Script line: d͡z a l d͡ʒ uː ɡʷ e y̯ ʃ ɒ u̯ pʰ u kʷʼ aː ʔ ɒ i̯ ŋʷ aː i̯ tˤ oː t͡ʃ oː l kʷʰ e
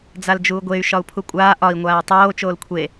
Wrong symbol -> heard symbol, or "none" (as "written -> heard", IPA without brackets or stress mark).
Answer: none